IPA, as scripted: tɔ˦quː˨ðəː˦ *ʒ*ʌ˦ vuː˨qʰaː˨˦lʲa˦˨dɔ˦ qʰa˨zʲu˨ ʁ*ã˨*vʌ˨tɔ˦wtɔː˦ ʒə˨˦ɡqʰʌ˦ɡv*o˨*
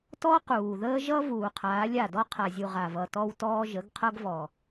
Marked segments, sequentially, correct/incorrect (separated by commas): correct, incorrect, incorrect